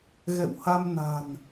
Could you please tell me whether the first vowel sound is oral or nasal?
oral